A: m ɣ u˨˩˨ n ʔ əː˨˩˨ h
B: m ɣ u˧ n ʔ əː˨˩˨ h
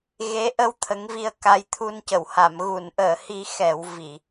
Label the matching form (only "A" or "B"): A